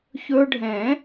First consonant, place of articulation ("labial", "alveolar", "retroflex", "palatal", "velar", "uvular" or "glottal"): palatal